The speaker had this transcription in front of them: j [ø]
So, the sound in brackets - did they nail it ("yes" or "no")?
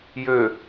yes